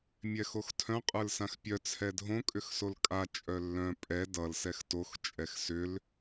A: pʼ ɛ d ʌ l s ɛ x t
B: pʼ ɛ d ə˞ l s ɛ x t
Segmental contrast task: A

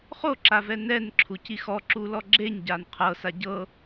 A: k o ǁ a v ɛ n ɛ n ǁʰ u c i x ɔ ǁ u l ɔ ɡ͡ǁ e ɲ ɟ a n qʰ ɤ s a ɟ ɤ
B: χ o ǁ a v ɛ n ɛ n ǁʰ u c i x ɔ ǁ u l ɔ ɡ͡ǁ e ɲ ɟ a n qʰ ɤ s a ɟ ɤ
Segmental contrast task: B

